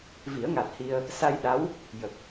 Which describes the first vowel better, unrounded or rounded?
unrounded